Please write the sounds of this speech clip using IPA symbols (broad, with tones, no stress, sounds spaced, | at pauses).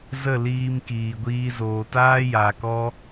z ə˦˨ l iː˧ m k iː˨ ɡʷ iː˧ z oː˨ t aː˦ j aː˨ k ɔ˦